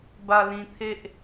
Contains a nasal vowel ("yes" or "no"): yes